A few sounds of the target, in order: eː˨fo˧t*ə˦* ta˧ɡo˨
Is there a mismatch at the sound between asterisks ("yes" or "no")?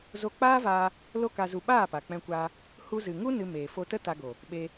no